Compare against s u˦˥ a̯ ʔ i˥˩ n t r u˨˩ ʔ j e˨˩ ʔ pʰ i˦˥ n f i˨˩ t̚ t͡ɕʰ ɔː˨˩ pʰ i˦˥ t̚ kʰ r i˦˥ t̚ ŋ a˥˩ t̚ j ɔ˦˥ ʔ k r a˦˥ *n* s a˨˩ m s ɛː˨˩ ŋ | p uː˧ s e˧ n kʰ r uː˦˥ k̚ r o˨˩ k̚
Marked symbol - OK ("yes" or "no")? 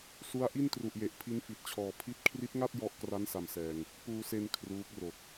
yes